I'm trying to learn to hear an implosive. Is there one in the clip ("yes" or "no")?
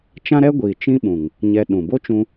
yes